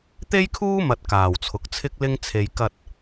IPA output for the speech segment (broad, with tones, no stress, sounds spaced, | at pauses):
t̪ e˥ j kʰ uː˥ m ɐ˨ t̚ k aː˨˩ w t͡sʰ ʊ˨˥ k̚ t͡sʰ ɪ˥ k̚ l ɪ˥ ŋ t͡sʰ e˨ j k ɐ˧ t̚